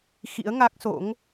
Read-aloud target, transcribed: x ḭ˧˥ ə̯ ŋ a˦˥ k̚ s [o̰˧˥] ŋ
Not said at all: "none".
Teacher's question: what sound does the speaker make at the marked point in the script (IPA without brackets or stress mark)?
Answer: o̰˧˥